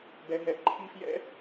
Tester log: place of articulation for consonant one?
labial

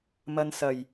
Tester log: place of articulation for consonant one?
labial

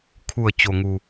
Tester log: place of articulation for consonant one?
velar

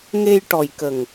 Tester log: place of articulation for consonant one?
velar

